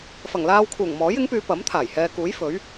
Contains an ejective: no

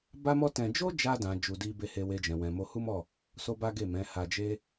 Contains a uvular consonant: no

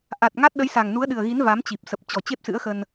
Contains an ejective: no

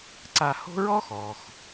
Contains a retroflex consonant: no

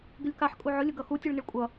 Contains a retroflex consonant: yes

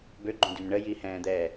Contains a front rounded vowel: yes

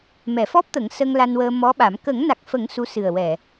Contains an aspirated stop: no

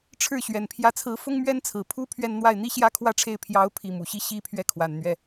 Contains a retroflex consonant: yes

